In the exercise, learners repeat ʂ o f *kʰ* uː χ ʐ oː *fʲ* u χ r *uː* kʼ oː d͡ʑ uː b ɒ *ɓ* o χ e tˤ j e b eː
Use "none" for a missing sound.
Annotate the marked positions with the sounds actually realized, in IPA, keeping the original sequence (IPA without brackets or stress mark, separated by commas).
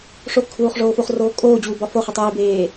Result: kʰ, f, oː, f